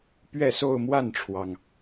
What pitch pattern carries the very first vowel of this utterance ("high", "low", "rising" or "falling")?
falling